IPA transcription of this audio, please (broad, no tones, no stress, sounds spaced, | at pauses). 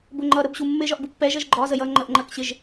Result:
b ʊ ŋ͡ǃ ʌ ɾ ə b ɕ u mː ɪ ʒ ɒ ʔ b u pː ɛ ʒ ʌ ʒ ɡ͡ǃ ɒ z ə j ʌ ŋ͡ǃ ə ʔ ŋ͡ǃ ɜ k ɕ ɪ ʒ